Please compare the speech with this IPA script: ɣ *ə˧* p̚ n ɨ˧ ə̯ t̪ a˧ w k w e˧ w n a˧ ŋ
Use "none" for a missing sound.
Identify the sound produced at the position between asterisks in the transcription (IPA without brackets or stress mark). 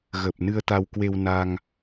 ə˨˩